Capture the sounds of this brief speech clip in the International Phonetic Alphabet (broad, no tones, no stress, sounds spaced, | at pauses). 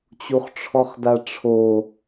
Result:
t͡ɕ u χ ʈ͡ʂʰ ɔ χ d a ʈ͡ʂʰ o